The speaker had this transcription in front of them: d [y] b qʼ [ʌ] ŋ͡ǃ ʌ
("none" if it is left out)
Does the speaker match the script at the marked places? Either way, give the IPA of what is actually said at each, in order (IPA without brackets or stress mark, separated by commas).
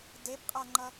e, a